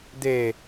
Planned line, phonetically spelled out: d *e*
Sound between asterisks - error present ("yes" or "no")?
no